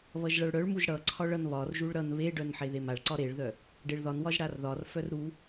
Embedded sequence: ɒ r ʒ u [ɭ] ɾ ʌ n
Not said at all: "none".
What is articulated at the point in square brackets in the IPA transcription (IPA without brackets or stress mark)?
ɭ